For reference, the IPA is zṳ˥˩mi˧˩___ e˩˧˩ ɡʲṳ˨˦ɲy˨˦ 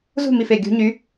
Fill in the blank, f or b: f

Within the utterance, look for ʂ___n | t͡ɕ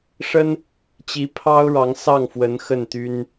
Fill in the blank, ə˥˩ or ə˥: ə˥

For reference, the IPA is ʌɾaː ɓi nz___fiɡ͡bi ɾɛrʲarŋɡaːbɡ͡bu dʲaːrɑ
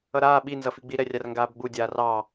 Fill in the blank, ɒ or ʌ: ʌ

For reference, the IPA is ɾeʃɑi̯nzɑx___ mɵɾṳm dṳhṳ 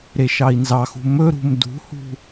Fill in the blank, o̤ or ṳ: ṳ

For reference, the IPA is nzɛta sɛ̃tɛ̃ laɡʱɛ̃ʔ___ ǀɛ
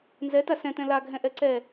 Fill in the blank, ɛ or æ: ɛ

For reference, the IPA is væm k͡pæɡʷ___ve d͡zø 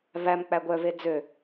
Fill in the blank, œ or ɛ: œ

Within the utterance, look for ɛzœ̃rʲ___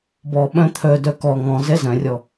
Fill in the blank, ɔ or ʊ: ɔ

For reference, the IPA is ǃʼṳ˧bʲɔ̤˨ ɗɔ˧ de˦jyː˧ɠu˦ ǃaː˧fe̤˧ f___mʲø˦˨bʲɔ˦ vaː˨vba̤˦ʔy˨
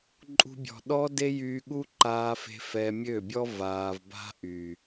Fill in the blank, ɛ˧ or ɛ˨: ɛ˧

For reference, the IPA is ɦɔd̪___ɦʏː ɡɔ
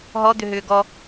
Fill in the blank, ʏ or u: ʏ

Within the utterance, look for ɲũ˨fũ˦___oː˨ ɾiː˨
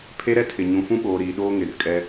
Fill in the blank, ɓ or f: ɓ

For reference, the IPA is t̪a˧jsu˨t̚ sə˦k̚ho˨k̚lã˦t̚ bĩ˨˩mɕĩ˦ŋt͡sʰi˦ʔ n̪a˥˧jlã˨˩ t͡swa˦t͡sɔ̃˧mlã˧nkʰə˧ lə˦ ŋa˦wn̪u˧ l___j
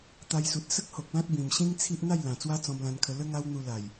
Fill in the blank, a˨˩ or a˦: a˨˩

